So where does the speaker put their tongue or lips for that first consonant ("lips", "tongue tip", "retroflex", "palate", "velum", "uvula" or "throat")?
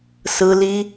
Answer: tongue tip